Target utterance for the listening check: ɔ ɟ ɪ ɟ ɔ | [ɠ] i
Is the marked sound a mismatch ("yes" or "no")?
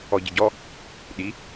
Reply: yes